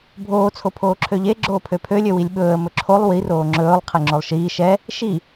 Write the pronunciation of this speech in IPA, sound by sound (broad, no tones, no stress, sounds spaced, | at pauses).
bʱ oː t͡sʰ o pʰ oː ǁʰ ø ʎ e ɡ͡ǁ oː pʰ ø pʰ ø lʲ ø w i lʲ ɓ ɵː ə̯ m ɵ ǁʰ o lˠ w i r oː ŋ͡ǁ ɵː lˠ qʰ e ŋ͡ǁ o lˠ ʃ iː ʃ ɛ | ʃ i